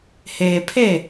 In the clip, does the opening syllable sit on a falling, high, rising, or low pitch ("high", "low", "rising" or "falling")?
low